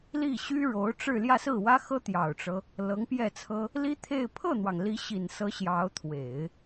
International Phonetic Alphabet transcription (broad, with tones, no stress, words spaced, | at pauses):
li˥˩ɕy˥ɻo˧˥ʊ̯ ʈ͡ʂɻ̩˥˧ ljä˥˧sɹ̩˥˩wä˥xɤ˥ t̪jɑ˨˩ʊ̯ʈ͡ʂɤ˦ | lɤ˧˥ŋpjɛ˥˩t͡sʰɤ˥ | li˥t̪ʰe˥˧ɪ̯ pʰɤ˥˩n̪wɑ˩ŋ li˧˥ɕi˨˩nsɤ˧˥ ɕjɑ˧˥ʊ̯ t̪ʰwe˨˩˦ɪ̯